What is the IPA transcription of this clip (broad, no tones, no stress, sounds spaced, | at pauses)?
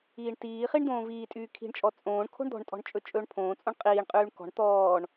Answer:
iː ɳ t iː χ i ɳ d̪ õː v iː tʼ yː kʰ i̤ ɳ t͡ʃʼ ɔ t͡sʼ õː ɳ kʰ o̤ ɳ d̪ ɔ̤ ɳ tʼ ɔ̤ ɳ t͡ʃʼ ɵ t͡ʃʼ ɵː ɳ pʰ õː t͡sʼ õ ɳ qʼ iː ɳ qʼ yː ɳ k ɔ̤ ɳ t̪ ɔː ɳ